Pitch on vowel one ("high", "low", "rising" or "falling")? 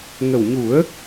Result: low